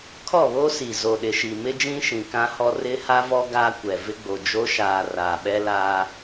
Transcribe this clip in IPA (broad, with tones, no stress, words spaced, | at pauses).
kʰɔ˦˨βo˦ si˨zo˨ɗɪ˨ʃi˨ mɪ˦d͡ʒĩ˦ʃĩ˨ kã˦hɔ˦ rɪ˦ ha˦vɔ˦ ɡa˦kʷɛ˨ vɪ˦ɡ͡bo˨d͡ʒo˦ ʃaː˨ raː˨ɓɛ˦ laː˦